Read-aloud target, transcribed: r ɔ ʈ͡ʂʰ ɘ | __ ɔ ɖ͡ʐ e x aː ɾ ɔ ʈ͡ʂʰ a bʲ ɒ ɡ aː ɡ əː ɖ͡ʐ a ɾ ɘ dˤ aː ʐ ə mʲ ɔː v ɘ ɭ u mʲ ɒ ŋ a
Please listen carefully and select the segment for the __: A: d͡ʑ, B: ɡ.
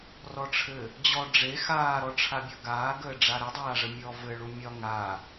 A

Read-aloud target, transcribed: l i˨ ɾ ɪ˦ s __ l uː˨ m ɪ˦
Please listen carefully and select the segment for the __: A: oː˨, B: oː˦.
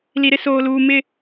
A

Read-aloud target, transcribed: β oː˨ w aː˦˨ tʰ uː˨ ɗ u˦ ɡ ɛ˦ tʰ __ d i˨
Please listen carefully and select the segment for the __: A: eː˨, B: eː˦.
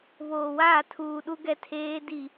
B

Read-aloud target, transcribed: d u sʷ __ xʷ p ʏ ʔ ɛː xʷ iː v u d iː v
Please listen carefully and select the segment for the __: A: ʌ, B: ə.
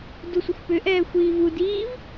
B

